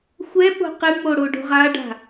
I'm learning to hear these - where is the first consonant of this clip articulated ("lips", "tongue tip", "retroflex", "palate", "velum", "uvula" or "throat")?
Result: velum